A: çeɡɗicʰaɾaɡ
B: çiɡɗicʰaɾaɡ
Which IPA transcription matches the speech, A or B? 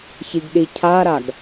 B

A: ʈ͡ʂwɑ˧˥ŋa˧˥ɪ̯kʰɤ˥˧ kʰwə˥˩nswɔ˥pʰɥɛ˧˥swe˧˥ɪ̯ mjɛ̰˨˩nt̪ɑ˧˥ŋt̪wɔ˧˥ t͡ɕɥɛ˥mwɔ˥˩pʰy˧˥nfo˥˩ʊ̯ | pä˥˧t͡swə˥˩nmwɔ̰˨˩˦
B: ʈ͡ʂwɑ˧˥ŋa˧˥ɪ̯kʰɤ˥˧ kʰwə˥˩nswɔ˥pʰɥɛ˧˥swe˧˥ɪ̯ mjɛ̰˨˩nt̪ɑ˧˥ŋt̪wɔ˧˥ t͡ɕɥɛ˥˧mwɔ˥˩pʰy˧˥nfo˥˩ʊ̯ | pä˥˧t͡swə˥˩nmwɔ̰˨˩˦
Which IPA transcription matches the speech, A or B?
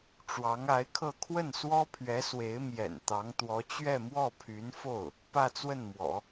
B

